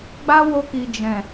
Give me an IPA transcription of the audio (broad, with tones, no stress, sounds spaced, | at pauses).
ɡ͡b a˦ w o˧ k i˨ d͡ʒ ɛ̃˨